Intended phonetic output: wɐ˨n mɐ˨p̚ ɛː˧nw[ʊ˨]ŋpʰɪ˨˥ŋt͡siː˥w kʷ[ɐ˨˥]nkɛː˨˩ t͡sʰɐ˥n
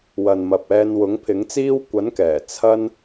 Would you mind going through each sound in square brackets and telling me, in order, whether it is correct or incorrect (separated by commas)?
incorrect, correct